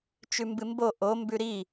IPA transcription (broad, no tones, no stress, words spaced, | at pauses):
t͡ʃʉmbɨmbo ʔombʉ ɾi